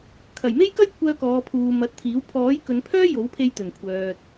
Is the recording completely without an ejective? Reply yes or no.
yes